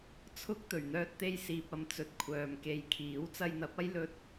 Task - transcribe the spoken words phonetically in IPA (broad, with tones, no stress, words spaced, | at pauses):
t͡sʰʊ˥k̚ t̪ɵ˨˩ɥn̪œː˧t̚t̪e˧j siː˨p̚ɐ˨˧m t͡sɵ˨˥t̚kʷʰœː˨mke˧jkʰiː˨˥w t͡sɐ˧jn̪ɐ˨˥p̚ɐ˥j lɵ˥t̚